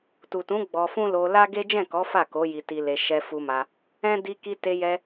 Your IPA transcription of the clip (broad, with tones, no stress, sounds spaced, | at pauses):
t u˨ t ũ˨˦ ɡ͡b ɔ˧ f ũ˦ l o˧ l a˦ ɡ e˦ d͡ʒ ɛ̃˦˨ k ɔ˨˦ f a˦˨ k o˨˦ j i˧ t i˧ l e˧ ʃ ɛ˧ f u˧ m a˧ | ɛ̃˦ d i˧ k i˧ t e˧ j ɛ˧